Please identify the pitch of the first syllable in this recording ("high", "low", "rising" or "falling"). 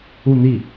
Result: falling